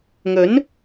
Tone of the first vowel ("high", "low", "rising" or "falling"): rising